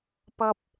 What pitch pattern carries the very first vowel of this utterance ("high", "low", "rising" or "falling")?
high